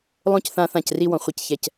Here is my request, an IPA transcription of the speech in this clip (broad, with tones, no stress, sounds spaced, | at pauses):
lˠ õ˦ c θ ã˦ θ ã˦˨ c r i˧ w ɔ̃˨ χʷ i˨ c ç ɛ˨ c